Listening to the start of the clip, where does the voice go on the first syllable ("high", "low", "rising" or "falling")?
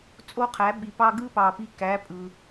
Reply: rising